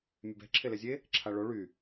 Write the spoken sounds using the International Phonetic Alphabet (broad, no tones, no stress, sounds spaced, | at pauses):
mʲ ɛ b ɛ̤ ǁʰ e l ɛ zʲ e | ǁʰ a ɭ o ɭ y